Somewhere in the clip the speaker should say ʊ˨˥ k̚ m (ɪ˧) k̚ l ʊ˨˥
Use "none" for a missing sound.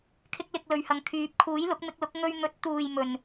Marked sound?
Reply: ɪ˧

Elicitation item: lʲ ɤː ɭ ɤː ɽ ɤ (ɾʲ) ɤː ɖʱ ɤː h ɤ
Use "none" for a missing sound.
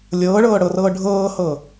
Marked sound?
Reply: r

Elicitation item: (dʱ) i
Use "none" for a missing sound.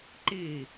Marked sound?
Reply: ǃ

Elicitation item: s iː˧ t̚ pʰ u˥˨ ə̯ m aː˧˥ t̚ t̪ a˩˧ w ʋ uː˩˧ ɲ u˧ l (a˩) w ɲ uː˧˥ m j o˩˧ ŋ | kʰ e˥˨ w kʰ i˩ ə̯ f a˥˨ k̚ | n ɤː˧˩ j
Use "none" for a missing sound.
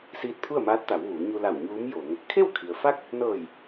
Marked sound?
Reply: a˧˩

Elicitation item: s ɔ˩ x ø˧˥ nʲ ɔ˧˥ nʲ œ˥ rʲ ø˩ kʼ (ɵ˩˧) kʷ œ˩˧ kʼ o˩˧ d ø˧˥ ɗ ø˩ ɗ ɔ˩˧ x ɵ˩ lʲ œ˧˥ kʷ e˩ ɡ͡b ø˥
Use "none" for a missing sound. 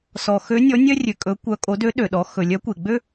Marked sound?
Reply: ɵ˩˧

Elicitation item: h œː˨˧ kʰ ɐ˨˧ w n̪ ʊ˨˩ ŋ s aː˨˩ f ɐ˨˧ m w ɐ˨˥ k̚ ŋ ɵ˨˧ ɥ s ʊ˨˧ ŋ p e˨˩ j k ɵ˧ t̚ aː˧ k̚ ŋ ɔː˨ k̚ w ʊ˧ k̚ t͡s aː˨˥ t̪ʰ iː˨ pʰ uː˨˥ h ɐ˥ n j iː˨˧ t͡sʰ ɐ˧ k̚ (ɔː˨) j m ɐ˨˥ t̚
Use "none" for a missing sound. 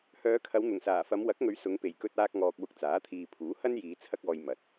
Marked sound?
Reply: ɔː˨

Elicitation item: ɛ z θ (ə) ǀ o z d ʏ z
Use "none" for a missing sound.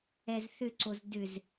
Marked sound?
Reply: ʏ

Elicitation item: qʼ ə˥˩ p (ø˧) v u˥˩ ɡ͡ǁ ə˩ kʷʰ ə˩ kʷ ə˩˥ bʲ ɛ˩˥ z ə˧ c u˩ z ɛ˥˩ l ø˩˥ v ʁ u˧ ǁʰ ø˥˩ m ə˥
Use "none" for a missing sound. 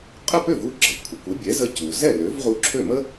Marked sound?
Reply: ø˥˩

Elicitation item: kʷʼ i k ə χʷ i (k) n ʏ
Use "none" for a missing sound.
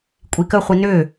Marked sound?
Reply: none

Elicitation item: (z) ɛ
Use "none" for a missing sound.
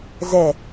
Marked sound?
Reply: z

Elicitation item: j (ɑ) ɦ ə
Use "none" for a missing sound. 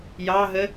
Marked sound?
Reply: ɑ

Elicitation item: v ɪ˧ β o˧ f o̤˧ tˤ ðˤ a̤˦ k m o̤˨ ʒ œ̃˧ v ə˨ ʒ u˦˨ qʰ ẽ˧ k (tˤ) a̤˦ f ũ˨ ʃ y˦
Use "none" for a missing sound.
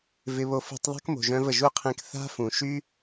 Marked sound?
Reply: θ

